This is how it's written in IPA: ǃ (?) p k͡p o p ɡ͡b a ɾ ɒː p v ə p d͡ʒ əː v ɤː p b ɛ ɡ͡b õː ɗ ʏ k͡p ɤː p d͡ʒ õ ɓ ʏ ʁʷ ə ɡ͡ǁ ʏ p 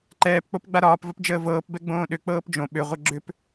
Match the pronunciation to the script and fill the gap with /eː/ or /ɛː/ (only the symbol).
ɛː